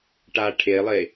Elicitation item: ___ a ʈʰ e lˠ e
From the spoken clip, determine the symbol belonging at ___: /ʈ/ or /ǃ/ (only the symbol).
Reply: ʈ